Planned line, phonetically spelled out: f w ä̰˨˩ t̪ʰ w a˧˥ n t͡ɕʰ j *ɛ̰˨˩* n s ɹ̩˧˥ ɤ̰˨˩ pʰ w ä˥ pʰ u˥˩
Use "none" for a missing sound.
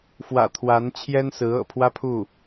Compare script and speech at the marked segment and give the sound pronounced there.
ɛ˥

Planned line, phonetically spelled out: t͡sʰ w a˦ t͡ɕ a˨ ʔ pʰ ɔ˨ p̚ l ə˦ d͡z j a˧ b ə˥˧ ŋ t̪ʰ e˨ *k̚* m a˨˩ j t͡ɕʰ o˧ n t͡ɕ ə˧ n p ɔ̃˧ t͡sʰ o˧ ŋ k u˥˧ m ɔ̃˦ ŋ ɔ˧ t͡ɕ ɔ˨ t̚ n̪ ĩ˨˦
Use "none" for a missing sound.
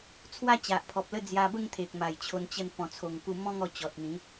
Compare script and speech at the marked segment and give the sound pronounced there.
k̚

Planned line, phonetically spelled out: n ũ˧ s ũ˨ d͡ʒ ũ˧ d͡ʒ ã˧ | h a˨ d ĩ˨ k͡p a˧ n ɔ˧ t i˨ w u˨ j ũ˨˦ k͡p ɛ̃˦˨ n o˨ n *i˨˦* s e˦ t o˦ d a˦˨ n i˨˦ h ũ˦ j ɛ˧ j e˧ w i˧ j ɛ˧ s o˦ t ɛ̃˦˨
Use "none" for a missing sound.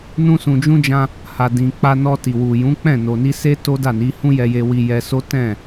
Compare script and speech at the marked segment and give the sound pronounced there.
i˧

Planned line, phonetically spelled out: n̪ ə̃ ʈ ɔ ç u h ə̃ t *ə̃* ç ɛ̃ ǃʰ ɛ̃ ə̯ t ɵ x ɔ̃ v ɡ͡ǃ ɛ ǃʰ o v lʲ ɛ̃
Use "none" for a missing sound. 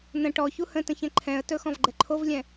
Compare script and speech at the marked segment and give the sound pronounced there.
ə̃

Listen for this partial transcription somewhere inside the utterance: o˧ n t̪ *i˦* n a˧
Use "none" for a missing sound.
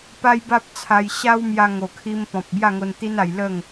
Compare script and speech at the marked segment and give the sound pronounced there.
i˦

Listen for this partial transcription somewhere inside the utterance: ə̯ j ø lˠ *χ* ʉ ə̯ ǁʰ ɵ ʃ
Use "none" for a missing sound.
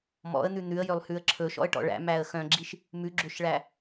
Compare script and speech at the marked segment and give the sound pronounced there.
h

